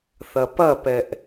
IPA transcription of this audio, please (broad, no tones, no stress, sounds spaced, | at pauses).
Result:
θ ɐ p ɐ p ɛ ʔ